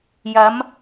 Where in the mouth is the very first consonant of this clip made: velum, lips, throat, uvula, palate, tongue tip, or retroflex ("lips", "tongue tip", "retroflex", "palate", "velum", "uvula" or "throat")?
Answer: palate